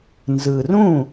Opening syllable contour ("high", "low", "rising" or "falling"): low